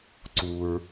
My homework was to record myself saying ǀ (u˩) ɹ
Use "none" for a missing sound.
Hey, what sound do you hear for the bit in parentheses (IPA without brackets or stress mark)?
u˩